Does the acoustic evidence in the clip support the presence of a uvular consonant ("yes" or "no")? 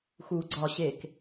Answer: no